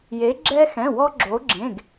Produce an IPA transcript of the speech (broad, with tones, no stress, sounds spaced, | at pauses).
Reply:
j e˩˧ ɡ͡ǁ ɛ˧ x ɛ̃˩˧˩ w ɔ˧ ɡ͡ǁ o˩˧ ɡ͡ǁ ẽ˩˧˩ ɡ